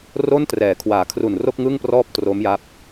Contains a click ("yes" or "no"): no